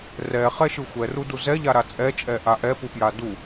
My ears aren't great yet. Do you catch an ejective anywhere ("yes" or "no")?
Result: yes